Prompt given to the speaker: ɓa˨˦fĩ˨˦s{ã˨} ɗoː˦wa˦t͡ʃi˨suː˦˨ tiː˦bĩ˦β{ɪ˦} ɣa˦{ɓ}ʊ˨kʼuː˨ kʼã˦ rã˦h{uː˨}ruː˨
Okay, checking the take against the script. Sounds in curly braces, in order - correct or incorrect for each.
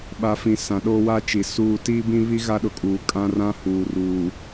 correct, incorrect: i˦, incorrect: ɗ, correct

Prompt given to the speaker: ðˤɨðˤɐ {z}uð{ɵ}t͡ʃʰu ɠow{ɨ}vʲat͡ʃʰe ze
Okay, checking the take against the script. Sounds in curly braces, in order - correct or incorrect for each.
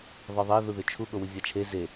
incorrect: ð, correct, correct

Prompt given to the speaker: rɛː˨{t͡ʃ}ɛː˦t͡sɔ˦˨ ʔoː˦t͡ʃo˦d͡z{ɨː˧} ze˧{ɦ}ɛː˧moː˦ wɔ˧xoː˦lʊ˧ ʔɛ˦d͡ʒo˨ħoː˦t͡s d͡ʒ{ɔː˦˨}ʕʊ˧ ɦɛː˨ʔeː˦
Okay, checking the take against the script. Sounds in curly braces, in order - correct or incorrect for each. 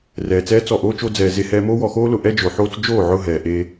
incorrect: t͡s, incorrect: ɛː˧, incorrect: h, incorrect: oː˦˨

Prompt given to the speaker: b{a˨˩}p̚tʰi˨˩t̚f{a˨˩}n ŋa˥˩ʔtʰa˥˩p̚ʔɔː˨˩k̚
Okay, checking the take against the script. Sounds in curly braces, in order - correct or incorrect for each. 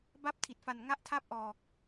incorrect: a˥˩, correct

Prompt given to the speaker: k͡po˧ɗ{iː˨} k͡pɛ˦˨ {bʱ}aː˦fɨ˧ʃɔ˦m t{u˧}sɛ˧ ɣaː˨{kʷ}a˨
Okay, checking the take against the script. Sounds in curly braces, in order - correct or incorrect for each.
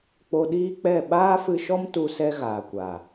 incorrect: iː˦, incorrect: ɓ, correct, correct

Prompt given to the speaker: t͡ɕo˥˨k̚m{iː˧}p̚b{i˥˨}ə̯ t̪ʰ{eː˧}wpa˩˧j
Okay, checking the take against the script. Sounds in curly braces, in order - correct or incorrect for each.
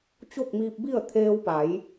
correct, correct, correct

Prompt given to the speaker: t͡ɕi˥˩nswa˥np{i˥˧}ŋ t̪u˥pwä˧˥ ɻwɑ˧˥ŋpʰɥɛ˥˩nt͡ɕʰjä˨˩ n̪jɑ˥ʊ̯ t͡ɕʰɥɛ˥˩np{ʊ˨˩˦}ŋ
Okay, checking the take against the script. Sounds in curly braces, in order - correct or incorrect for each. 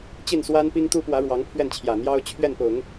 incorrect: i˥, correct

